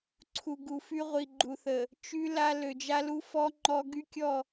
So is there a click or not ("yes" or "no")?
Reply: yes